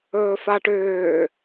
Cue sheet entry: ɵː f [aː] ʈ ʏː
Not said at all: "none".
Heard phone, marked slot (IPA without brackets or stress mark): a